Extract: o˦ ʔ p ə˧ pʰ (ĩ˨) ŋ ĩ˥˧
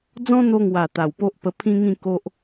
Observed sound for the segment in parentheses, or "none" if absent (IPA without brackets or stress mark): ĩ˦